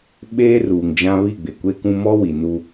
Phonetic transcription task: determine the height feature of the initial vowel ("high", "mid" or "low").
mid